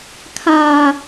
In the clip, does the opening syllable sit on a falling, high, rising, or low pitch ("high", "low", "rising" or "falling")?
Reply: high